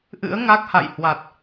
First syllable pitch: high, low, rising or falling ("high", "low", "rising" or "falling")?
rising